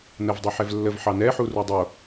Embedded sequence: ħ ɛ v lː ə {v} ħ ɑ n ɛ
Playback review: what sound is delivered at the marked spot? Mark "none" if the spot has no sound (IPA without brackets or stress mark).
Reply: v